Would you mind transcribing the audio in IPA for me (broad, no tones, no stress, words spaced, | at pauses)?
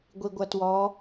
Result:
ɡʷiɡʷɐtwɔ